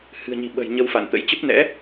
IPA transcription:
h ɨ̤˨˩ ə̯ ɲ i̤˨˩ ɓ ə̤˨˩ j ɲ ə˧ w f a̰˧˨ n t̪ ə̰˧˥ j t͡ɕ ə˦˥ p̚ n ɛ̰˧˥

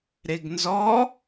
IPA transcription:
ɾ e ɡ n z ɔ

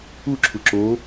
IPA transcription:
u ǁʰ u ǁ o

